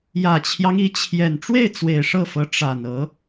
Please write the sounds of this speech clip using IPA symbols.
j ä˨˩ t͡ɕʰ j ɑ˦ ŋ i˧˥ t͡ɕʰ j ɛ˨˩ n ʈ͡ʂ w e˥˩ ɪ̯ t͡s w e˨˩ ɪ̯ ʂ ɤ˥˩ f ɤ˧˥ ʈ͡ʂ a˨˩ n ɤ˧˥

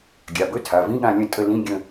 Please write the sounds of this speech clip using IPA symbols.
ɡʲ a˩˧˩ b ɵ˧˥˧ tʰ a˩˧˩ v ĩ˧˥˧ ɠ ã˦˨ lʲ ə̃˦˨ tʼ ə˦˨ l ĩ˧˥˧ ɡʲ ə̃˦˨

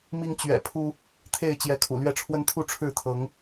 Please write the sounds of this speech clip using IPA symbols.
m i˦ ŋ t͡ɕ ɥ ɛ̰˨˩ pʰ u˦ | t̪ʰ e˥˨ ɪ̯ t͡ɕ j ɛ˨˦ kʰ ṵ˨˩ l ɥ ɛ˥˨ ʈ͡ʂʰ w ə˦ n t̪ʰ u˥˨ ʈ͡ʂʰ ɻ̩˥˨ t̪ʰ ɤ˨˦ ŋ

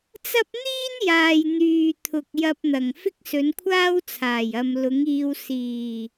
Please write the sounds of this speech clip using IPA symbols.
t͡s ɐ˥ p̚ n̪ iː˥ n j aː˨ j n̪ yː˨ t̪ʰ ʊ˨ k̚ j ɐ˧ p̚ n̪ ɐ˨˩ ŋ f ɪ˥ k̚ s ɵ˨˧ n kʷʰ aː˥ w t͡sʰ aː˨˩ j ɐ˨ m l ʊ˨˥ ŋ iː˧ w s iː˨˩

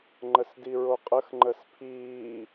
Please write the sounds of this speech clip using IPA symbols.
ŋ͡ǃ ə s d i ɹ o qʼ ə x ŋ͡ǃ ə s pʰ iː

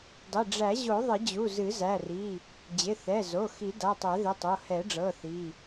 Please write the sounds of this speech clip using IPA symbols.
dˤ ɪ˩˧˩ ɖ͡ʐ æ˨˩˦ ʑ o˨˩˦ ðˤ ɪ˨˩˦ d͡ʑ u˩˧˩ z ɨ˨˩˦ z æ˩˧˩ r i˩˧˩ | d͡ʑ ɪ˩˧˩ θ ɛ˩˧˩ z o˩˧˩ x i˨˩˦ d a˩˧˩ tˤ æ˨˩˦ ð ɪ˩˧˩ tˤ o˩˧˩ h ɛ˨˩˦ ɖ͡ʐ ɤ˩˧˩ θ i˩˧˩

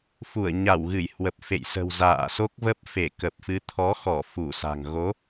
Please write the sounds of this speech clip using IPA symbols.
f u˧˩ ə̯ ɲ a˧˩ w ɣ ɨ˧˩ j h w ə˨˩ p̚ f ḛ˧˨ j s ə̤˨˩ w z a̰ː˧˨ s o˦˥ k̚ v ə˦˥ p̚ f e˧˩ k ə˨˩ p̚ f ɨ˨˦ t̪ʰ ɔ˨˦ x ɔ˧˩ f u˧˩ s a̤˨˩ ŋ ɣ o˨˦

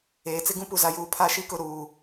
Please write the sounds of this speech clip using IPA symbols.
eː˨ t͡s ɪ˦ ɡ ũ˦ p u˨ z a˨ j uː˨ pʰ a˦˨ ʃ i˦ k ʊ˦˨ ɾ uː˨

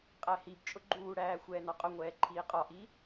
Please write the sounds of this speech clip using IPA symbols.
qʼ æ h i b t͡ʃʼ ʊ ɡ͡ǃ uː ɽ æː xʷ ɛː n ɒ qʼ ʊ ŋʷ ɛː ǃʰ iː qʼ ɒ ʔ i

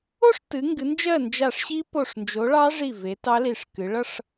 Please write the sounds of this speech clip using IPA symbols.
o˥˨ ʂ t ɨ˨˦ ŋ ɡ ɨ˨˦ n d͡ʒ ɜ˥˨ n d͡ʒ a˧˩ ʂ ɕ i˦˥ p o˧˩ ʂ n d͡ʒ o˨˦ ɭ ɑ˦˥ ʐ i˧˩ v e˨˦ t ɑ˦˥ l i˧˩ ʂ k ɨ˨˦ ɭ ʌ˥˨ ʂ

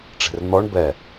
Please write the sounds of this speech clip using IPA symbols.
ʈ͡ʂ e̤ r n̪ ɔ ɳ b ɛ

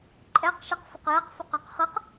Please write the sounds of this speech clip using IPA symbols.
ǃʼ ɛ q ʃ i q f ə q j ɛ q f ʏ q ɑ q χ ɯ q

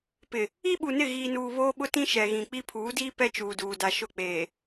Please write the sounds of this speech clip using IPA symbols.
p ɪ˨ | i˦ ɓ u˨ n ɪ˦˨ ɣ iː˨ n uː˨ β oː˦ ɓ ʊ˦ t ĩ˦ ʃ ɛ˨ ɣ ĩ˨ k͡p i˦ pʰ uː˨˦ d iː˦ p ɛ˦ t͡ʃ uː˨ d uː˨ d a˨ ʃ ʊ˦˨ k͡p eː˨

